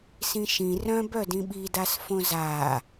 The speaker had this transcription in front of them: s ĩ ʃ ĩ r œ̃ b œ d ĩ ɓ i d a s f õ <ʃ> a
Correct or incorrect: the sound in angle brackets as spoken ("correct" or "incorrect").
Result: incorrect